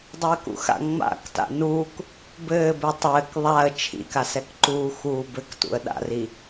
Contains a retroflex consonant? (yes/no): no